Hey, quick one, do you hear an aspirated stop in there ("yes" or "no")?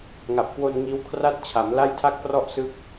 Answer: yes